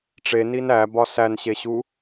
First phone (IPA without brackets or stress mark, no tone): ʈ͡ʂ